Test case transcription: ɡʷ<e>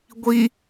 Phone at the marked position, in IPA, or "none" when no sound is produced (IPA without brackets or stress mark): i